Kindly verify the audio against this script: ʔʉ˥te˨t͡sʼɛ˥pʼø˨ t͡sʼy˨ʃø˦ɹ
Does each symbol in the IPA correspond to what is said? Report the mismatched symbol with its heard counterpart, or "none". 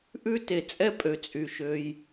ɹ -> j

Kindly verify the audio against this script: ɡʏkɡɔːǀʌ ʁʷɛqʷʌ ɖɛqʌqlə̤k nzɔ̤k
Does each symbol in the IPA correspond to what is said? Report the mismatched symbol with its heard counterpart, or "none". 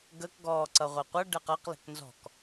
ʏ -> ə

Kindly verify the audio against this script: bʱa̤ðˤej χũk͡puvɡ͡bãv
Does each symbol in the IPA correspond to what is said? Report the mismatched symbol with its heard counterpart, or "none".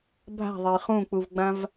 none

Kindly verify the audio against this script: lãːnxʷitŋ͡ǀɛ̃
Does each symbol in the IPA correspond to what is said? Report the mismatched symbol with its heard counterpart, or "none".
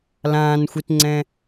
none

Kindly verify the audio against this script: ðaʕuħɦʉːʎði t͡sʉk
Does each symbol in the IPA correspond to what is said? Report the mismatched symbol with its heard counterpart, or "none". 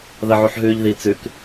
a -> ɐ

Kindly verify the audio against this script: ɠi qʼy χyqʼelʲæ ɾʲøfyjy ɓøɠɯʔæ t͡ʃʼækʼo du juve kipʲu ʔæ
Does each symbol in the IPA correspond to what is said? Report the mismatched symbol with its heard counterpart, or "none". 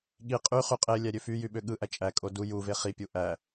k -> χ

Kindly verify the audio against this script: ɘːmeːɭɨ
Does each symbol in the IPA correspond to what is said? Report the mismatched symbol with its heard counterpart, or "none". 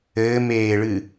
none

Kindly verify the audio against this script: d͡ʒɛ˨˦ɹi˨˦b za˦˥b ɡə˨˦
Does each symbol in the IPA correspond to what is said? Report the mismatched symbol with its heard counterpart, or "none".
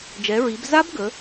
none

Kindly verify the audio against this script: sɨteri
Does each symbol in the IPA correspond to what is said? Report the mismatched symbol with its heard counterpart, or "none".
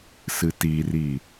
e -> i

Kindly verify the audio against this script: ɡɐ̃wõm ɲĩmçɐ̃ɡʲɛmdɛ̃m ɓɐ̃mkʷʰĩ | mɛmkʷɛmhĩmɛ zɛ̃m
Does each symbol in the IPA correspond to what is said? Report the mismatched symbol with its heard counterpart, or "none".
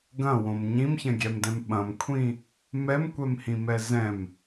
none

